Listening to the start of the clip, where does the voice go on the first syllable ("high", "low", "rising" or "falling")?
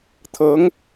rising